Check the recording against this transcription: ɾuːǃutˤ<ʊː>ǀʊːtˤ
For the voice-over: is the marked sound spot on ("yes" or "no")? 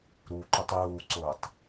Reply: no